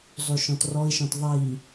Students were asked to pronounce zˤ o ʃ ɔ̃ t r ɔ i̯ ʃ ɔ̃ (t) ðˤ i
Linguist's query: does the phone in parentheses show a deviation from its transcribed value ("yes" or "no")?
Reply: no